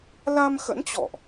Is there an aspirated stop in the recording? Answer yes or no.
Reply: no